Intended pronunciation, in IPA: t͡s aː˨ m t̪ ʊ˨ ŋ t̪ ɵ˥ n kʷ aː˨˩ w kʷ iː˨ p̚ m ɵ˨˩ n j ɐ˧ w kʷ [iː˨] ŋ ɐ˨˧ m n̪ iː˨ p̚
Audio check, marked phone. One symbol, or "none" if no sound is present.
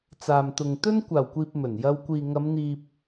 iː˨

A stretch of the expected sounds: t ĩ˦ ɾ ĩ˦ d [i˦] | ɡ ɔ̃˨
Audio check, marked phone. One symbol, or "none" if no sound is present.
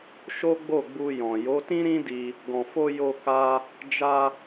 i˧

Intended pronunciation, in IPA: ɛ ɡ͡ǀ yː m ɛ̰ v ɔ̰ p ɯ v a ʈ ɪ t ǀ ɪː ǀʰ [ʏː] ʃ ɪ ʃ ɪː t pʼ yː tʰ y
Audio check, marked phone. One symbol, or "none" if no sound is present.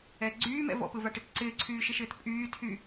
yː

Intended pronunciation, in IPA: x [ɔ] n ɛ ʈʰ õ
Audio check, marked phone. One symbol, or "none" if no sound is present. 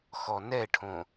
ɔ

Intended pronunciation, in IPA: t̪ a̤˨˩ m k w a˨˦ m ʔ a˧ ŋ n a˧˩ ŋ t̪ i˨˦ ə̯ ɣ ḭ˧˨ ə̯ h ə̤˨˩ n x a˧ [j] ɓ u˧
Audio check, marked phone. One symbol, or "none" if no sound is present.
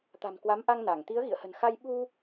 j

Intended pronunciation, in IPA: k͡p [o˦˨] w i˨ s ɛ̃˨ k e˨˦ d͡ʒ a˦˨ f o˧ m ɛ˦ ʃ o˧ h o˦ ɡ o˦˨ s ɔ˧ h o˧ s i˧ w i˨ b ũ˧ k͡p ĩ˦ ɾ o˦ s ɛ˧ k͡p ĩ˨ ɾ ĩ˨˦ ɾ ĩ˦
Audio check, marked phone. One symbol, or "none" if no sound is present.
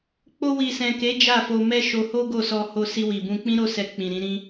o˧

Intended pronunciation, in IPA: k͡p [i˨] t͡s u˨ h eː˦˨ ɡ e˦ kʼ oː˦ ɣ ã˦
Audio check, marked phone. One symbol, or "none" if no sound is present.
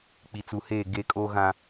i˨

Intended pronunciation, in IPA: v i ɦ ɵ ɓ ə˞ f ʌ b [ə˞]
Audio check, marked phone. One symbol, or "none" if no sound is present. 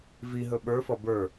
ə˞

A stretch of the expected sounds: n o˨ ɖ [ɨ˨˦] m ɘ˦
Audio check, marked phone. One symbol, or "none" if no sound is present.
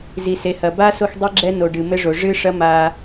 ɨ˨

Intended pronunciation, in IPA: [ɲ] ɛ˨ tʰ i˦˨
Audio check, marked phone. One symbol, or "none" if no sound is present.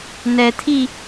n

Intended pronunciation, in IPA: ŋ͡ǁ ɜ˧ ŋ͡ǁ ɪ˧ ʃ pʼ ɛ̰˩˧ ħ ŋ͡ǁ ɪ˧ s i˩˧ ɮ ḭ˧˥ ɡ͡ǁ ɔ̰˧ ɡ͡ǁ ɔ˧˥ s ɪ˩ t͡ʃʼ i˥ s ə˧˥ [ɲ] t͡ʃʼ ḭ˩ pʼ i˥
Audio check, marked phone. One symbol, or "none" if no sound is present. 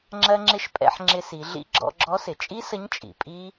ɲ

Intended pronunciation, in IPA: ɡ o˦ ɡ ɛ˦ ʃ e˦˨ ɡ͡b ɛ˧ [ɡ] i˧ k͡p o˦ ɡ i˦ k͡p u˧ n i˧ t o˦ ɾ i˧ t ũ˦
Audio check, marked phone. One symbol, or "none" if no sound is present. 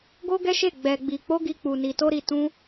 ɡ͡b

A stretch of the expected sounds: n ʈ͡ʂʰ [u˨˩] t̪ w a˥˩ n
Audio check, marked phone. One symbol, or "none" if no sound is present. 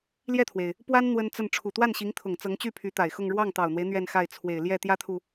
u˨˩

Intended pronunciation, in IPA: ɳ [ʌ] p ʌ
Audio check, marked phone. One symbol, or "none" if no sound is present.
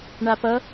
a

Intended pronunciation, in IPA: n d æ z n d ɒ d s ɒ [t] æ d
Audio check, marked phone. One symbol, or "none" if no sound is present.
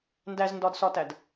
t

